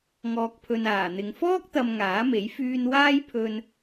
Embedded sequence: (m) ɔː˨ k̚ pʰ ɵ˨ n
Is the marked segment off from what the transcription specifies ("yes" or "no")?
yes